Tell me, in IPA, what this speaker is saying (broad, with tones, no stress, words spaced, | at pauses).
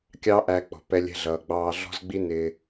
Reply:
kʲɑ˦ʔæ˧ k͡pɔ̤˨pɛ˧lʲɛ̤˧ɮʌː˨ ɡ͡bɑː˧ɮɔ̤˦zɡ͡bi˦ nɪː˧